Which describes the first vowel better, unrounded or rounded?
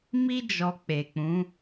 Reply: unrounded